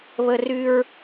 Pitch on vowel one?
high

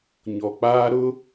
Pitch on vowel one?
low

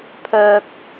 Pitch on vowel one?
high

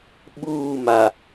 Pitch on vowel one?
falling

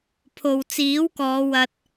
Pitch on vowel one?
low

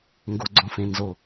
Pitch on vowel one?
low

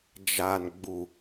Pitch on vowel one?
low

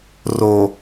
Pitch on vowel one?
low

